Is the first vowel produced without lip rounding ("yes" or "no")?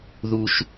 no